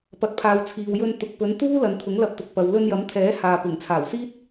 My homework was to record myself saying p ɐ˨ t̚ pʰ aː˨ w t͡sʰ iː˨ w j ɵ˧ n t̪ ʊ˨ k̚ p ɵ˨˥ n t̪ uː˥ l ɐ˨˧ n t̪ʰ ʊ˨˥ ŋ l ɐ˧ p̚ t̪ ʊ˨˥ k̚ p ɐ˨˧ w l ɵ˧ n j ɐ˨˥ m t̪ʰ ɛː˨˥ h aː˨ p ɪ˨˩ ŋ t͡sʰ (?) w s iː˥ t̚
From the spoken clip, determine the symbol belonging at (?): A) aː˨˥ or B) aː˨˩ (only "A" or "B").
B